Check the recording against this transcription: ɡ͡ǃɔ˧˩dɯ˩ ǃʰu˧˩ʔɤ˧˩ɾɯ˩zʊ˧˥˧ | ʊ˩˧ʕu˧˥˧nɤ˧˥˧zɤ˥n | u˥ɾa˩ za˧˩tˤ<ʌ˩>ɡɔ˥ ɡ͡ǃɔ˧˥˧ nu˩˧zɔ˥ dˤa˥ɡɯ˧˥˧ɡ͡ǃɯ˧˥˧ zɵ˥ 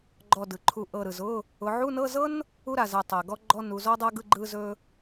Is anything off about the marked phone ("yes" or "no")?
yes